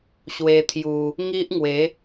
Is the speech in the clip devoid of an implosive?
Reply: yes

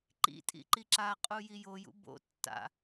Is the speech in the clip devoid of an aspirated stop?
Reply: yes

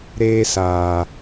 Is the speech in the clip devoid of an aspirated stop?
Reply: yes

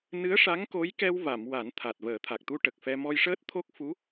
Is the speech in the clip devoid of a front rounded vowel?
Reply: yes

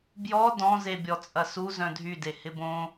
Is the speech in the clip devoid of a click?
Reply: yes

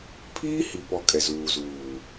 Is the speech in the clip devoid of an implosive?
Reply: yes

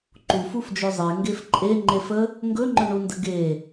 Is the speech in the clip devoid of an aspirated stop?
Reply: yes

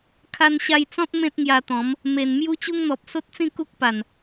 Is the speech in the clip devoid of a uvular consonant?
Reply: yes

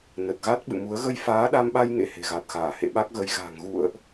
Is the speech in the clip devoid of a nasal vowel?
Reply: yes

